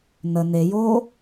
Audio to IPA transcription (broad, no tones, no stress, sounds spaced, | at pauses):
n ə n e j oː